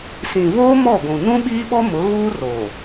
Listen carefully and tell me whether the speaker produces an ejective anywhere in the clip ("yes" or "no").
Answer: no